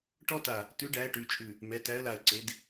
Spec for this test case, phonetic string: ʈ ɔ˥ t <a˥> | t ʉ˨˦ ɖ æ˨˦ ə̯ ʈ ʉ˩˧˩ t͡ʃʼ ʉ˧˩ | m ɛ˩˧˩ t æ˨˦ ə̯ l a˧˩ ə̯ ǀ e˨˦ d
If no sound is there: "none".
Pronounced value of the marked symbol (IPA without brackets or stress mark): a˧˩